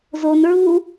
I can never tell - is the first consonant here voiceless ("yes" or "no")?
no